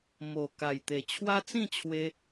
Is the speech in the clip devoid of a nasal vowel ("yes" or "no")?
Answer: no